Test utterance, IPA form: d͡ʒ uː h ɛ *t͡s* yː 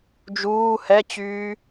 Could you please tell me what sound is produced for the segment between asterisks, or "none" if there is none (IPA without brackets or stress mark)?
t͡ɕ